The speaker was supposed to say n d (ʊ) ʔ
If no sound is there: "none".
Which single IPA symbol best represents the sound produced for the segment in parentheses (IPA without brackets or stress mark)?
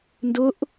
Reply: ʊ